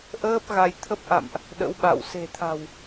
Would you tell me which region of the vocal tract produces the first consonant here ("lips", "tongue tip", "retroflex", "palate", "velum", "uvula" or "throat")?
throat